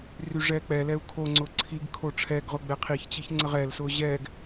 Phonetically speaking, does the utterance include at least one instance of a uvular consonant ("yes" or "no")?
yes